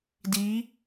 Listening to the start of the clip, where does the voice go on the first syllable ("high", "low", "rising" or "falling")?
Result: rising